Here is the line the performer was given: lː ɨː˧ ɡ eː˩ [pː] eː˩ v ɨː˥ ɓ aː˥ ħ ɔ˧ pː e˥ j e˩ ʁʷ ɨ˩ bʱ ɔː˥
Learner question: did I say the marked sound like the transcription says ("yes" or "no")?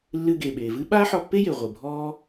no